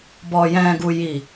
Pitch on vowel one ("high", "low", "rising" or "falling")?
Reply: low